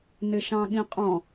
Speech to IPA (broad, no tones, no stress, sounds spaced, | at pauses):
n ɪ ʃ ɑ̃ ɠ ĩ qʼ ɔ̃